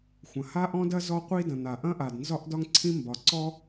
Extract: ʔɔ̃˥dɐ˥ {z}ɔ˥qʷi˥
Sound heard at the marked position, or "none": z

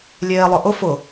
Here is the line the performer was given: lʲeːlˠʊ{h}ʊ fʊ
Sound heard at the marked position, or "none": ʔ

